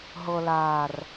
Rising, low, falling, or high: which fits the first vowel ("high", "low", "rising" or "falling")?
low